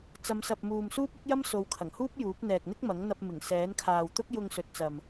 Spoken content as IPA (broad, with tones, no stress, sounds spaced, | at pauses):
t͡s ɐ˨˧ m s ɐ˨ p̚ m uː˨ m s uː˥ p̚ ʊ˥ k̚ j ɐ˥ m s o˨˧ w kʰ ɐ˨˩ ŋ h uː˥ p̚ j uː˨˥ p̚ n̪ ɛː˨ k̚ n̪ ɪ˥ k̚ m ɐ˨˥ ŋ n̪ ɐ˧ p̚ m ɪ˨˩ ŋ s ɛː˨˥ n kʰ aː˨ w t̪ ʊ˥ k̚ j ʊ˧ ŋ s ɵ˨˥ t̚ t͡s ɐ˨ m